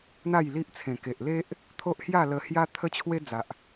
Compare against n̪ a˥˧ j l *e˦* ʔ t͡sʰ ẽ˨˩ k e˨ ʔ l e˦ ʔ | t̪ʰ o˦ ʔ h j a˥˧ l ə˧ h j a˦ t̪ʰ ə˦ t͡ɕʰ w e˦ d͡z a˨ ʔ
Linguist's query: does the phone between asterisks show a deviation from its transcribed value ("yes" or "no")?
yes